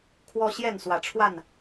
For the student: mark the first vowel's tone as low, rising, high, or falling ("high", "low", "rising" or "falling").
high